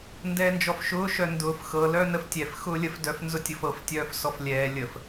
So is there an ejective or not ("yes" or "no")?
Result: no